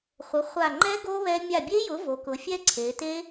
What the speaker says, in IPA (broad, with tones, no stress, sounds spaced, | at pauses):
χʷ ə˩˥ χʷ a˧˩ ŋ͡ǃ ɛ˦˥ ɡ o˦˥ β ɛ˦˥ mʲ a˧˩ bʲ e˦˥ j ʊ˩˥ v o˩˧ k ʊ˩˧ fʲ ɛ˦˥ ǀʰ e˩˧ t e˦˥